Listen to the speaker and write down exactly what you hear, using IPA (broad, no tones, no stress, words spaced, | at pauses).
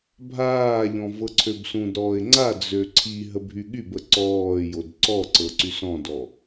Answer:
bʱaːʎɔ̃ vɤǀʰøbsũdɾɔːɪ̯ ŋ͡ǀad͡zø ǀʰi ɦəbʱyɠybə ǀɔːjod ǀɔǀɤ ǀysɔ̃dɔ